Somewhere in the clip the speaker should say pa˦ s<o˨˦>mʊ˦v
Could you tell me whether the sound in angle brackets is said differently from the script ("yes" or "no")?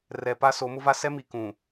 no